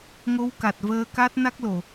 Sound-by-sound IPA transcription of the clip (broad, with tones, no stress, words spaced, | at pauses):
ŋo˧˥wka˨˩t̚vəː˧ka˦˥t̚ na˦˥k̚lo˨˩˨